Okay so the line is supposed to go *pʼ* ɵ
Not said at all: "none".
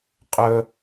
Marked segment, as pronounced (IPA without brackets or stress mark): qʼ